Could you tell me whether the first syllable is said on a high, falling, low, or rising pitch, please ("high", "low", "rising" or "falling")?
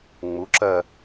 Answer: rising